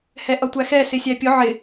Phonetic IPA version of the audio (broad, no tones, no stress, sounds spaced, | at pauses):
h ɛ ʔ ʌ tʷ æ x ɛ s ɪ sʲ æ pʲ ʊ ʕ ɪ